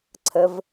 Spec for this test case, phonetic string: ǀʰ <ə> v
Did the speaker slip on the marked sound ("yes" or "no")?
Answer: no